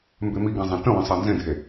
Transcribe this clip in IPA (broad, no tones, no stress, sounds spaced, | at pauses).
m b e m i ɡ ã zˤ ĩ t ə̃ w ə̃ sˤ a n z ẽ dʱ e